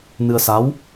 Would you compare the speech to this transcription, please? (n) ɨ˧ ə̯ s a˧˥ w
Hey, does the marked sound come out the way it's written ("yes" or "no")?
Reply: yes